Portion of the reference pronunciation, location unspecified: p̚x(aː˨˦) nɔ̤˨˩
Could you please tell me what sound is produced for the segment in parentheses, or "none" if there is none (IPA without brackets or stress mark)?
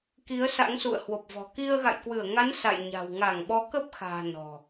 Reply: a̤ː˨˩